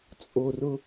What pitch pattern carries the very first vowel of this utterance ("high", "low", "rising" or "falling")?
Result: low